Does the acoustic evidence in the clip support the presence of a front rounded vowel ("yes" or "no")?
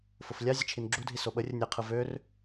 yes